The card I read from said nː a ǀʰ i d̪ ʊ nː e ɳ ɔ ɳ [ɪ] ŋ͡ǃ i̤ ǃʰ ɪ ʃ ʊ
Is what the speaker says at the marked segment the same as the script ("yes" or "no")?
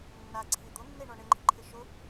yes